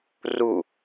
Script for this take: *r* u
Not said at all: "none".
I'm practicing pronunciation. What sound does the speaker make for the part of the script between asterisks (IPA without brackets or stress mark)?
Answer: r